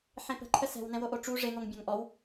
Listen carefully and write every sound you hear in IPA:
ħ ẽ p ə̤ ǃʰ ə s ɛ̤ w n ɛ̃ w o ʔ o ʈ͡ʂ u ʐ e ŋ o ŋ bʲ ɔ̃ ŋ ʔ ɔ w

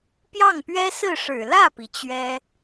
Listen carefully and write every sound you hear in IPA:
p j ɑ˥˩ ŋ p ɥ ɛ˥ s ɹ̩˥˩ ʂ ɻ̩˨˩ l ä˥˩ p i˩ t͡ɕ ɥ ɛ˥

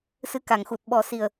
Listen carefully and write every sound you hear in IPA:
s ɨ˧ k a˨˩˨ ŋ x u˨˩ t̚ ɓ ɔ˨˩˦ s i˨˩ ə̯

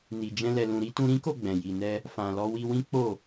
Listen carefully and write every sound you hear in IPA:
n i˧ d͡ʒ ɛ̃˦ l ɛ˧ l ũ˧ ɾ i˦ t ũ˧ ɾ ĩ˦ k o˦˨ ɡ͡b ɛ̃˨ j i˨ n ɛ˧ | f ã˨ l ɔ˧ w i˧ w ĩ˦ k͡p o˦˨

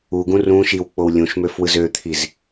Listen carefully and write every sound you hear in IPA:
u ɡ ũ r ũ ʃ i w k͡p o w lʲ ũ ʃ m ø f w ɯ z ø t̪ʰ i z

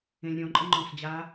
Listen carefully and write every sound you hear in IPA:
ẽ lʲ ɾʲ ɔ̃ ǃʼ ə ŋ͡ǃ ɔ̃ s d͡ʑ a

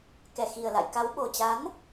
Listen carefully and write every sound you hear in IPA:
k ɛ˨˩ x i˨˩ ə̯ l a̰˧˨ j k a˨˦ w ɓ o˨˩ t͡ɕ a˨˦ n

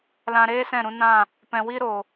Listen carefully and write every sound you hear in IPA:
l ã˧ ɾ eː˦ s ɛ̃˦˨ ɾ ũ˧ n ã˦˨ | p ɛ̃˨ w i˦ ɾ o˨

